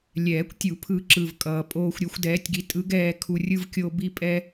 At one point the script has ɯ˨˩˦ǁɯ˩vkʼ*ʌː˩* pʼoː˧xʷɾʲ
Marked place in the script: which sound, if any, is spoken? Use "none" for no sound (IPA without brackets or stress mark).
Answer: ʌː˩